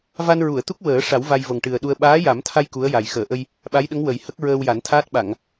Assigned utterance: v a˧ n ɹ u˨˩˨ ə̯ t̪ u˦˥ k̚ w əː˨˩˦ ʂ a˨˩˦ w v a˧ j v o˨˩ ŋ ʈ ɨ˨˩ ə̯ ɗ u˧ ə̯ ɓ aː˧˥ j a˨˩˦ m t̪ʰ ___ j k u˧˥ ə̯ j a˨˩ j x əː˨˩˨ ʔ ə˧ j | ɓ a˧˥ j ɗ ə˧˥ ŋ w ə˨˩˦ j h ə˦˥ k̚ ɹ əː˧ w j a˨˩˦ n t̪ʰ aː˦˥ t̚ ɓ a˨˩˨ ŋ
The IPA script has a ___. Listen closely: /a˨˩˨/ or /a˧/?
a˧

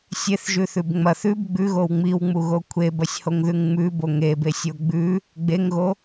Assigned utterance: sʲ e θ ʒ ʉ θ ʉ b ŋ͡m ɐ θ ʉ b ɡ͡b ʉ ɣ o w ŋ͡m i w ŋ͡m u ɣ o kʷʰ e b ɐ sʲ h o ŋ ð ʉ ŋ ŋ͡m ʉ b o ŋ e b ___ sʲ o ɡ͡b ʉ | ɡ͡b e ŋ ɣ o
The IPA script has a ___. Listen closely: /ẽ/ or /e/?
e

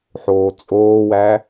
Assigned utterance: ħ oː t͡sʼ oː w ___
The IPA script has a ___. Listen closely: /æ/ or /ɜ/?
æ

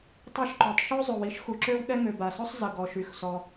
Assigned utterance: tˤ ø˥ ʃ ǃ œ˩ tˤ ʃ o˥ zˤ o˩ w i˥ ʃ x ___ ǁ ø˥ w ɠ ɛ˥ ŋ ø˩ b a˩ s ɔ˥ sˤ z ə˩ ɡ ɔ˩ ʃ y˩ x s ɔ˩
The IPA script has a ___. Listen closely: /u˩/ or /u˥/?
u˩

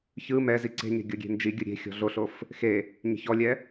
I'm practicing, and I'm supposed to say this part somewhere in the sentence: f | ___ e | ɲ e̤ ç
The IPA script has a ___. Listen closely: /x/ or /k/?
x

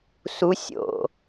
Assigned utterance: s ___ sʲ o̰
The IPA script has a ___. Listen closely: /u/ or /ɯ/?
u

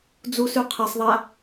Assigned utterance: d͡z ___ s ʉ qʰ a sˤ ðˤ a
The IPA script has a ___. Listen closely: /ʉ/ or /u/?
u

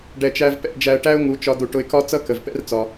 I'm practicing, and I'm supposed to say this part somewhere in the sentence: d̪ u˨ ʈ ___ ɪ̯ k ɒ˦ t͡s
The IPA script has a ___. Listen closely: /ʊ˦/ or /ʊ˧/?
ʊ˧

